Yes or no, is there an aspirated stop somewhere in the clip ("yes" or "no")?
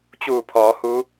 yes